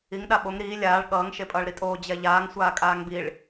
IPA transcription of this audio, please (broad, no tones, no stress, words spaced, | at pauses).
iŋ ɗaɓoŋ ɾiː lʲaːɭ ɠʌːŋ ʃepʼʌːɭɾitʼoː d͡ʑɛʎaːŋ sʷaːkʼaːŋbiɭ